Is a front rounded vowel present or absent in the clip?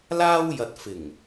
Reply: absent